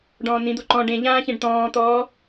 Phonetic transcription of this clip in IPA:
ɖ ɔ̃ː n ĩ d̪ o ǃ ɔ̃ ɖ ẽ ʎ ãː ç ẽ ɖ t̪ ɔ̃ː t̪ ɔː

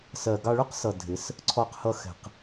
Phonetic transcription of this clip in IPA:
s ɜ˨ ɡ ɑ˧ ɭ ʊ˦ q s ʌ˨ dʱ ɪ˨˦ s | ǀʰ ɔ˧ q h ʌ˧ x ɛ̤˨ q

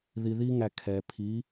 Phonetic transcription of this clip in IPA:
ð i˩ ð i˧ ŋ æ˩ kʰ ɛ˩ pʰ i˩˧

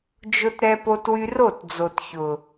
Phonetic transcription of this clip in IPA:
d͡ʒ ʊ˧ t ɾ ɛ˧ p o˧ t w y˧ r o˦˨ t d͡z o˨ t ç ʊ˨

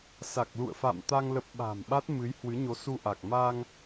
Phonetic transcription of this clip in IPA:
s a˨˩ k̚ l ṵ˧˨ ə̯ f a̰˧˨ m t̪ a˧ ŋ l ə˦˥ p̚ ɓ a̤˨˩ m ɓ a˦˥ t̚ m ɨ˨˦ j h w ɨ˨˦ ɲ o˨˦ s u˧ ʔ a˨˩ k̚ m a˧ ŋ

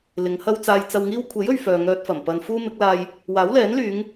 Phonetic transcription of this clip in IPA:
l ɪ˨˧ ŋ h ɐ˥ w t͡s aː˧ j t͡s ɐ˧ w ŋ iː˥ w kʷʰ e˨˥ j ɵ˨ ɥ f œː˨ ŋ œː˧ t̚ f ɐ˨˩ m p ɐ˨ n f uː˥ m ɪ˨˥ k̚ l aː˧ j | w aː˨˥ w l ɛː˨˥ n l yː˨˧ ŋ

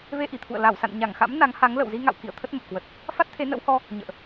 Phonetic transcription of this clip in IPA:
v e˧ ʔ i˧˩ t̪ʰ ṵ˧˨ ə̯ l a˧˩ w s a̰˧˨ n ɲ a˧˩ ŋ x a̰˧˥ m n a˨˦ ŋ h a˨˦ ŋ l ə̰˧˨ w z i˧ ŋ a̰˧˨ w k ḭ˧˨ ə̯ t̪ʰ ə˦˥ t̚ m ə˨˩ p̚ k w ə˨˩ t̚ | f a˦˥ t̚ t̪ʰ e˨˦ n ə̰˧˥ w h ɔ˧ | ɲ ə̰ː˧˨ ʔ

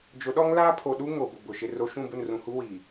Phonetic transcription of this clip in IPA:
d͡ʒ ʊ˨˦ ɗ ɔ˦ ŋ l aː˦ pʰ o˨ ɗ u˦ ŋ o˨ b ʊ˨ b ʊ˨ ʃ ɪ˦ r o˦ ʃ ũ˦˨ b ʊ˦˨ n r ũ˨ h u˦ w iː˨

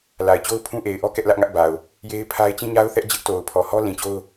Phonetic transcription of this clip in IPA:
l a˨ ɪ̯ t͡ɕ o˦ ʊ̯ pʰ ũ˦ ʔ e˨ ɪ̯ ʔ ɔ˦ k ɛ˦ ʔ l ä˦ ʔ ŋ ä˦ ʔ b a˨ ʊ̯ | j e˦ ɪ̯ pʰ a˦ ɪ̯ t͡ɕ ĩ˦ ɲ a˦ ʊ̯ θ ɛ˦ ʔ d͡ʑ ɪ˦ ʔ t o˨ ʊ̯ pʰ ɔ˨ h ɔ˦ l ĩ˨ t͡ɕ o˦ ʊ̯

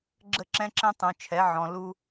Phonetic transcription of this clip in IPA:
ɡ͡ǁ ə˦˨ ǁ ɛ̃˦ ǁ ɛ̃˦ tˤ ũ˨ t͡ʃʰ ɛ˨˦ ʕ ɔ̃˨ l u˦

